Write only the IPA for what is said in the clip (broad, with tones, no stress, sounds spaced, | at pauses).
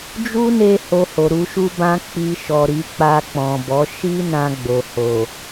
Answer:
d͡ʒ u˦ n e˧ h o˧ h o˨ ɾ u˧ ʃ u˦ b ã˧ k͡p i˧ ʃ ɔ˨ ɾ i˨˦ k͡p a˧ k͡p ɔ̃˨ b ɔ˨˦ ʃ i˦ n ã˧ ɡ͡b o˨ h o˨